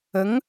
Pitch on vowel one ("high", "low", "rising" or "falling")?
rising